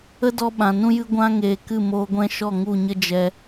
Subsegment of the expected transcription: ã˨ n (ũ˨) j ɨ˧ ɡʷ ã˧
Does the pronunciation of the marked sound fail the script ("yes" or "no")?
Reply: yes